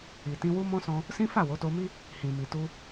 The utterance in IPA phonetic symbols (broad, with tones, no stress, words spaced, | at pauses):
i˨tĩ˧wu˦mɔ̃˦ sɔ̃˦ | sĩ˦fa˦˨ wo˨˦to˧mi˦ | hĩ˨mi˨tu˧